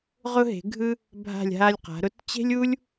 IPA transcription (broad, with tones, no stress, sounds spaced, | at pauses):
ʁ ʊ˧ ɦ e̤˩˧ ɡʱ ɯ˧ | bʱ a̤˧˩ lʲ ɦ a˧ lʲ q a̤˩˧ ɾ ʊ˧ t t͡ɕ e̤˥ lʲ u˥ lʲ